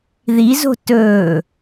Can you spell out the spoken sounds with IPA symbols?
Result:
ð i z o̤ t ɵː

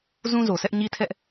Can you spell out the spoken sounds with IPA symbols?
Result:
z ũ˦ z o˨ s ɛ˦ ʔ ɲ i˦ tʰ ɛ˦ ʔ

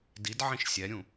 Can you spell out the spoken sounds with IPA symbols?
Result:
d i d ʕ ĩ ʃ sʲ ɛ ɾʲ ũ

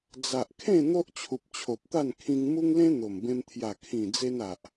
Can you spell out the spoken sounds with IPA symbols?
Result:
d͡z a˨ ʔ kʰ ẽ˥˧ n̪ o˦ ʔ t͡ɕʰ u˨ p̚ t͡ɕʰ o˨ p̚ t̪ a˥˧ n kʰ ĩ˧ ŋ m u˦ ŋ l ẽ˦ n̪ o˨˩ m b ẽ˧ m t̪ʰ j a˨˩ kʰ ĩ˨˩ d͡z e˧ n a˨ ʔ

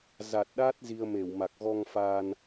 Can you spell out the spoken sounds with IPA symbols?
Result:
z a˨˩ t̚ ɗ aː˦˥ t̚ z i˧ ə̯ m e˧˩ w m a˨˩ k̚ ɣ ɔ˧ ŋ f aː˧ n

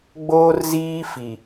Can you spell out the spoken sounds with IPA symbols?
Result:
ɡ͡b oː˦ r z iː˦ f i˨

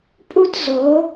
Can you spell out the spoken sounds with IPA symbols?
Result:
pʼ u˦ t z o˨˦

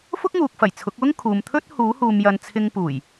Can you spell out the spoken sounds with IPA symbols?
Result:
f ʊ˥ k̚ ŋ uː˨ k̚ f ɐ˨˩ j t͡sʰ ʊ˨˥ k̚ w ʊ˥ ŋ kʰ uː˨ m t̪ʰ ɵ˥ t̚ h uː˨˥ h uː˨ m j ɐ˨ n t͡sʰ ɪ˧ ŋ p uː˨˩ j

